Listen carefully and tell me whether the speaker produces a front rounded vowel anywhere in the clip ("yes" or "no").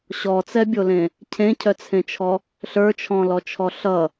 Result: yes